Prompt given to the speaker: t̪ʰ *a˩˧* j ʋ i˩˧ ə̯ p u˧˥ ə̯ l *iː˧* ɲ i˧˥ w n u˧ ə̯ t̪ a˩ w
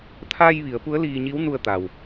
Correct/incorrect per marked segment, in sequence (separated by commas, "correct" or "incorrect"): incorrect, correct